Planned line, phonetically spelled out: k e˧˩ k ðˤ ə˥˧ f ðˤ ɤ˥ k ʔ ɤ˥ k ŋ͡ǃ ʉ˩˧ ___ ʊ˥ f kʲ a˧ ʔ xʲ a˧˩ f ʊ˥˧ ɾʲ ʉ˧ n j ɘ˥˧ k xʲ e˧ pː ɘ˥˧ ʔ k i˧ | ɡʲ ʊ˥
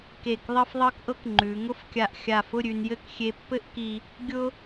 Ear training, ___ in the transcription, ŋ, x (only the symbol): ŋ